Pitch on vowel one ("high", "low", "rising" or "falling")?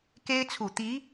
high